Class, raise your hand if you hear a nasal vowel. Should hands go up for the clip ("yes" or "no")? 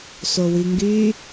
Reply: no